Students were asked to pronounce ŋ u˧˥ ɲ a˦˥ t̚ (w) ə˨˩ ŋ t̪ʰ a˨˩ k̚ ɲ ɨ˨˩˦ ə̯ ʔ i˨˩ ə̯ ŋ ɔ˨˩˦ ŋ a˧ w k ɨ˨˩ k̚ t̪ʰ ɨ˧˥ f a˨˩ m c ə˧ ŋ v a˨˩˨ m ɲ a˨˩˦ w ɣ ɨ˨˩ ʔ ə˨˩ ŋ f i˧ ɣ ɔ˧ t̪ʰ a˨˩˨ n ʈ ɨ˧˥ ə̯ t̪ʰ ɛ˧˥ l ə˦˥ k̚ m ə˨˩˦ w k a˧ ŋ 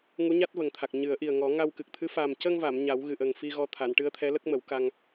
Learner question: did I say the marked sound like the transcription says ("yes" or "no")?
no